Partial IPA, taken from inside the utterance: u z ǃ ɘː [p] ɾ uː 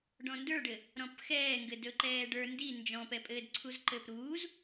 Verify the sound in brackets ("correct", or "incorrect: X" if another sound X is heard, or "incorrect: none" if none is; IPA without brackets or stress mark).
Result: correct